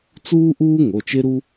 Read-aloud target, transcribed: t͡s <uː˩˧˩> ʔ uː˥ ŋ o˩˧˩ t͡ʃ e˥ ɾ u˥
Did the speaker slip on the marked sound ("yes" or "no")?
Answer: yes